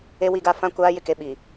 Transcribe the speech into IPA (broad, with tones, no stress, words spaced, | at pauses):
e˦wi˦ɡa˦ fã˦kʷaː˦jɪ˦ke˨˦ ɓi˨